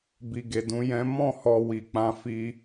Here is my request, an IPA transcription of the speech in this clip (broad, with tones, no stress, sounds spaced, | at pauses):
b i˨ ɡ e˨ d ũ˨˦ j ɛ̃˦ m ɔ̃˦˨ h ɔ˧ w i˨ k͡p ã˧ f i˧